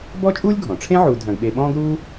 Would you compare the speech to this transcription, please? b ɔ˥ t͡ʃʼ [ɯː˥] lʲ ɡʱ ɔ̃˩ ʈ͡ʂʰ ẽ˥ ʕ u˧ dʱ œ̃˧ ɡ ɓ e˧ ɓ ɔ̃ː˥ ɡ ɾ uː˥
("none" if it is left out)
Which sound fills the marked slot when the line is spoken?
uː˥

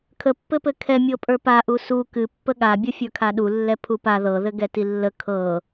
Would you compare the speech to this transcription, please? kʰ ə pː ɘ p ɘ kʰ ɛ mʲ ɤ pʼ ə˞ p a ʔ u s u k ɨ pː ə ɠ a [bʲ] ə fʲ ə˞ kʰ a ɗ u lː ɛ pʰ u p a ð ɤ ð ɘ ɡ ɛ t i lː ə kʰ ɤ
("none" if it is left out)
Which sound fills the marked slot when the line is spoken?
bʲ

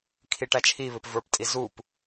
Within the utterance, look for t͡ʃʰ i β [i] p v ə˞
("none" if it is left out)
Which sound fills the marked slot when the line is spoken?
ɪ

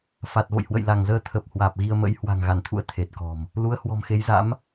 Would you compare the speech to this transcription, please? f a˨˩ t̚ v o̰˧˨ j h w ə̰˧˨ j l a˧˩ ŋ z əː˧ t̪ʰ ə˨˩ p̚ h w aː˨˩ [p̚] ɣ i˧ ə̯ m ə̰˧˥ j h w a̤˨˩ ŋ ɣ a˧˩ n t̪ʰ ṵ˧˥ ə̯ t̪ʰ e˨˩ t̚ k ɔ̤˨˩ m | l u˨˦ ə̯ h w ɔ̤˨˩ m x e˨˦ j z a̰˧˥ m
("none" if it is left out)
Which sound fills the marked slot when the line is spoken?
p̚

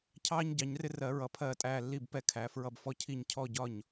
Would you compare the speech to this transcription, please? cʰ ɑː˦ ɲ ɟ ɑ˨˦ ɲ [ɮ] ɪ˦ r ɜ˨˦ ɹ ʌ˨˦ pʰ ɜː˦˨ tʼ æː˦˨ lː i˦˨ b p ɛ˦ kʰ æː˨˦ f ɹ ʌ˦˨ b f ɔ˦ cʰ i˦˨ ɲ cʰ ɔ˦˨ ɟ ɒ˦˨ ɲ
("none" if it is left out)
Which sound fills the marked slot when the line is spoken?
r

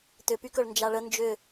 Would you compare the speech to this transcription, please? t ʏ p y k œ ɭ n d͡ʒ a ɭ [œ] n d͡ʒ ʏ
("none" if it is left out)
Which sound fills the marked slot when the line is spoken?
ə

